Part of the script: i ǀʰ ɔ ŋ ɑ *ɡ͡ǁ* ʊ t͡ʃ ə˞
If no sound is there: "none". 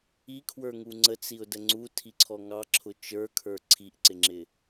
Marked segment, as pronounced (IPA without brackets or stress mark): ǁʰ